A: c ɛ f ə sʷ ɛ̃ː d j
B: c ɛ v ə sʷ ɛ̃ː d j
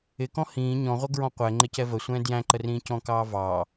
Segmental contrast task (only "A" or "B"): B